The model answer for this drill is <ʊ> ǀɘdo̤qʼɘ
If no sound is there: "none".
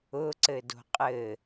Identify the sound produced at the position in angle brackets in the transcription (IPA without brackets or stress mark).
ʊ